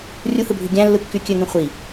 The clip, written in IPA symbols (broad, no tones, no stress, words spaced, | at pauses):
rʲuhɯbʱy ɡʲæ̃lːɯkːy kʲøŋẽ χʷi